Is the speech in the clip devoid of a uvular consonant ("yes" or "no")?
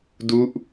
yes